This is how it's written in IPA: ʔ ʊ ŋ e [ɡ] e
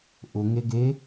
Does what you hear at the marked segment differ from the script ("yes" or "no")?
no